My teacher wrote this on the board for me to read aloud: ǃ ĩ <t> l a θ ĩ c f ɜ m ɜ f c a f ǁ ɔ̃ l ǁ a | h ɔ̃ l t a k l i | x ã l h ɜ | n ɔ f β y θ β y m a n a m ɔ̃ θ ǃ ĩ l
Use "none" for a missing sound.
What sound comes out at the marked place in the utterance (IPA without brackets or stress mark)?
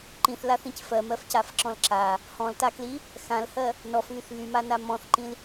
θ